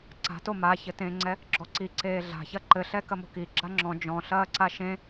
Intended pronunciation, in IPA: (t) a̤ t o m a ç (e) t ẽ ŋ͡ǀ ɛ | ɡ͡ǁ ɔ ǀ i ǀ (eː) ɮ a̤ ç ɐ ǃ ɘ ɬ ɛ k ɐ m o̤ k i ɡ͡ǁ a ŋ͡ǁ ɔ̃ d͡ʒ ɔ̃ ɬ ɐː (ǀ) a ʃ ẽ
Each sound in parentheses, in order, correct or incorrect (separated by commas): incorrect, incorrect, correct, correct